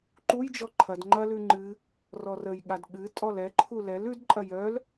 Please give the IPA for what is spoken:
ǃ u j d͡ʒ ɔ ǃʰ ɐ d ŋ͡ǃ ɐ l ʉ ŋ͡ǃ ɨ | r ɔ r ə j ɠ a d ɠ ɨ tʼ ɔ l ɛ ǃʰ u l ɛ l ʉ d ǃʼ ɐ j œ l

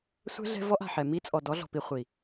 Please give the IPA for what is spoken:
sʷ ɛ̤˦ ɮ ɛ̤˦ v ɔ˦ ʔ a̤˨ ħ ɛ˨ m i˦ t͡sʼ ɔ˨ d ɔ˨˦ ɮ ɔ̤˨ p i˨ χʷ i˨

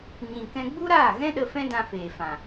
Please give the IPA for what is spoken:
ɲ ĩ˨ k ɛ̃˧ ɡ͡b u˦ ɾ aː˦˨ ɣ ɛ̃˦ ɗ ə˧ f ɛ̃˦ d ã˧ f eː˨ f ã˨

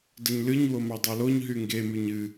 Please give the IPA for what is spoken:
d ə ɲ l ɨ ɲ w o m ɑ dˤ ɑ l o ɲ ɦ y ŋ ɡ e m y ɲ ɨ

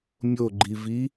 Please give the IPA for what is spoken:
mʲ o ɡ͡ǃ i v i

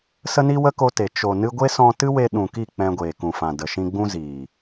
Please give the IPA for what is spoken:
s ə˦ n i˦ w ə˦ k o˧ t e˨ t͡ʃ o˨ n ɨ˧ ɡʷ e˦ s ɔ̃˧ t ɨ˦ w e˧ ɗ ũ˨ k i˦˨ k͡p ɛ̃˧ ɡʷ eː˨ k ũ˨ f ã˨ d ə˨ ʃ ĩ˧ ɡ͡b ũ˦ z iː˨

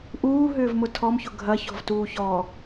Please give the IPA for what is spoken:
ʔ uː ɦ ʏː v m ʊ tʰ ɔ m ç ʊ ɡʱ ɐ ç ɔ̤ v t uː ç ɔ

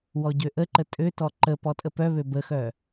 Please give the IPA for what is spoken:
w ɔ ɟ ø ʔ ə ǃ ə tʼ ø t ɔ ǃ ə p ɔ tʼ ə p œ β ø b ə x œ

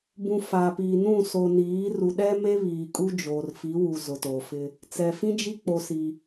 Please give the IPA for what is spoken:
b ũ˨ f aː˨ p iː˨ n ũ˦˨ s o˨ n iː˨˦ r u˨ ɗ ɛ˦ m e˦ β iː˨ kʼ u˦ d͡ʒ oː˨ r f i˨˦ w u˨ z ʊ˨ t oː˨ f ɪ˦ | t͡s ɛ˨ f ĩ˦ d͡ʒ i˦ k͡p o˦ s i˦

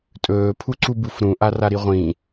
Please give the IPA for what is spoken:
tʼ ɵː pʰ u ǀ u b u f ɾ ũ ʔ a r a ɾ i ʁʷ ĩ

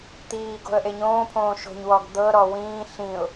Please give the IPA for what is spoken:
t̪ iː ɡ o̤ ə̯ ʔ e ɲ õː pʰ õː ʃ o̤ ɲ w ɔ ɡ d̪ ɤ ɾ ɔ w ĩː ɬ ĩ ʊ̯

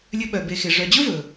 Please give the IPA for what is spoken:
lʲ ɵ˦ ɓ œ˨ b e˨ x e˩ ʐ œ˨ d͡ʑ ɵ˥ v ɵ˩

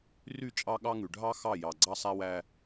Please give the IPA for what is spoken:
r y˦˨ t͡ʃʼ ɑ˦ ɠ ɑ˦ ŋ ʉ˨ ɖʱ ɑ˦ x ɑ˦˨ j ɑ˨ ɡ͡ǀ ɑ˦ sˤ æ˦ w æ˦

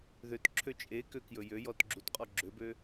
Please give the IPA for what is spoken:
ð ø t ǁʰ ø t͡ʃʼ e k ø k j ɵ j ø j ɔ t ɡ͡ǁ u t qʼ ɔ ɡ͡ǁ ø b ø

